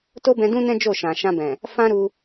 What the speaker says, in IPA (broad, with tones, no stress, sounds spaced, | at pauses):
t o˦ b ɛ̃˧ d ũ˦ n ɛ̃˦ d͡ʒ o˦˨ ʃ ã˨ ʃ ã˧ b ɛ̃˨ | f ã˦ ɾ u˧